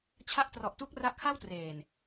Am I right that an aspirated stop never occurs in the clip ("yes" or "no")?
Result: no